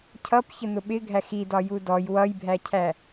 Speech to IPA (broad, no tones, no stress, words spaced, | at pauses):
cʰʌp çən̪ʊɓɪ ɡʱæxi dɒjudɔj wʌjbʱæcʰæ